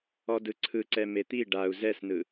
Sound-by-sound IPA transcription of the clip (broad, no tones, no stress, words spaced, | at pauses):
ɔdɯǀʰɯǀɛ met̪i ɖau̯ zɛsnɯ